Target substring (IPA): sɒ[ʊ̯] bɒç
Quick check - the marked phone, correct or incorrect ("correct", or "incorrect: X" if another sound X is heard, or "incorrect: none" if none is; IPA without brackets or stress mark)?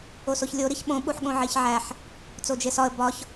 incorrect: ə̯